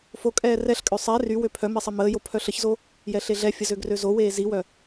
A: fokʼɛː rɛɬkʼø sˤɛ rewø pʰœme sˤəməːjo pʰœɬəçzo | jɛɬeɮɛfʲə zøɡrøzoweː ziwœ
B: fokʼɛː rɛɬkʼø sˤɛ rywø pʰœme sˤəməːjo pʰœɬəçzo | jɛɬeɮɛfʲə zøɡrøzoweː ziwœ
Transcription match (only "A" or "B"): B